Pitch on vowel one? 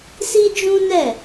high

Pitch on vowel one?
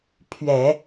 low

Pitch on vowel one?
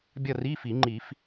falling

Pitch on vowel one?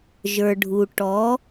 low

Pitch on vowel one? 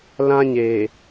high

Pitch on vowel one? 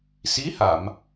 rising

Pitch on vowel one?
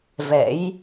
rising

